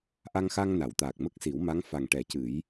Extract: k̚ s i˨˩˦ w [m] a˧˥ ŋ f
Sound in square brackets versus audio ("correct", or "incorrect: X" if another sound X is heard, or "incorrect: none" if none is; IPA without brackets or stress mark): correct